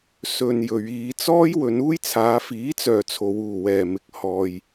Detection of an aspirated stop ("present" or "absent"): present